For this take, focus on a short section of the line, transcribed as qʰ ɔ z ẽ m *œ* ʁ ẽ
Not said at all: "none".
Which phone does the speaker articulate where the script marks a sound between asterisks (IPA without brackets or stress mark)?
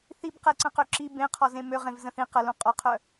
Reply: ø